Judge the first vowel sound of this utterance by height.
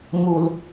high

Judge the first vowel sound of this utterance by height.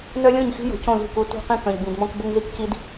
mid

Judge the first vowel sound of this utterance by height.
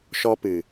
mid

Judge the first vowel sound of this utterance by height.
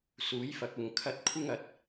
high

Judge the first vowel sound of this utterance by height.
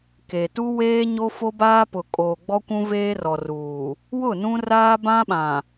mid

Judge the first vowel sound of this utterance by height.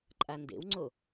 low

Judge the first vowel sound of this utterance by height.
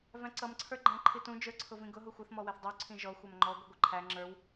low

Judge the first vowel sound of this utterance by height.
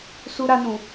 high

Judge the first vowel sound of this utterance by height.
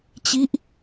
high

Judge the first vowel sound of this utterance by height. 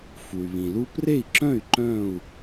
high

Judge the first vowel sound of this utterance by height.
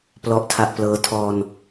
mid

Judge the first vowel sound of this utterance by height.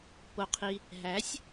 mid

